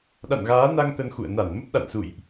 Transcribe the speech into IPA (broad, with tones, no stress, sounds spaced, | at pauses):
ɗ a̰˧˨ n ɣ aː˨˦ n a˧ ŋ t̪ ə˧ n x ṵ˧˨ ə̯ n a˧˩ n m ə˦˥ p̚ ɗ a̰˧˨ n s ṵ˧˨ j ʔ